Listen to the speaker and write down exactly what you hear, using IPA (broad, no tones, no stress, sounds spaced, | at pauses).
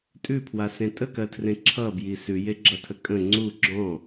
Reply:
tʼ ʉ pʰ w a s ẽ tʼ ə k ɜ tʰ r ẽ ǁʰ ʌ b j i s ʉ j e ɡ͡ǁ ʌ tʰ ə kʼ ə̃ ŋ͡ǀ u ɡ͡ǁ ɔ̃